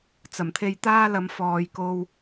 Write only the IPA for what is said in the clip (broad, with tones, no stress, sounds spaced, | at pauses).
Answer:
t͡s ɐ˨˩ m t̪ʰ e˧ j t̪ aː˥ l ɐ˨˧ m f ɔː˨ j k o˧ w